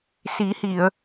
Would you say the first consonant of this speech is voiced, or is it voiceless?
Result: voiceless